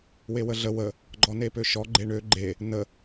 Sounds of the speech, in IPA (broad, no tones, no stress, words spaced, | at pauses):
wewəɮə wə | ɡ͡ǃɔnepøʃɔ ɡ͡ǃeɳø ɡ͡ǃe | nə